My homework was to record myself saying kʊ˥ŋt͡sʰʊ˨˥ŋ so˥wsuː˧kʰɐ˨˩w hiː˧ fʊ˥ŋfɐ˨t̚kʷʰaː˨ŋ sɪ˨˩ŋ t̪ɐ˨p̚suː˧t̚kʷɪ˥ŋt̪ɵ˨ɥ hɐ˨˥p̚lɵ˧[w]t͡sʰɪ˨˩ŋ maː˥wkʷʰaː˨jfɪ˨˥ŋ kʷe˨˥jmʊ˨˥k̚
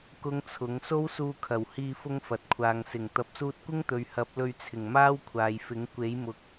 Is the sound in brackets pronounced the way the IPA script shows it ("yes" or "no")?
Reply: no